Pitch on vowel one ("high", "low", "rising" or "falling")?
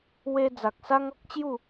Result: high